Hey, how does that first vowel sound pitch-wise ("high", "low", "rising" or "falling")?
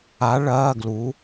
rising